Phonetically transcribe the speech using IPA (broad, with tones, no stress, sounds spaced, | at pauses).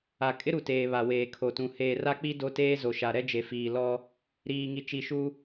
a˨ kʼ ɪ˦ ɾ u˨ t eː˨ β a˨ w eː˨ kʰ o˨ t ũ˨ h eː˨ r a˦ k͡p i˦ d o˦ t eː˦ z o˨ ʃ a˨ ɾ ɛ˦ d͡ʒ e˨ f iː˨ l ɔ˦ | ɾ iː˨ ŋ i˨ t͡ʃ i˨ ʃ u˦